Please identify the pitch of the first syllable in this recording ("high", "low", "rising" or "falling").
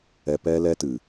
low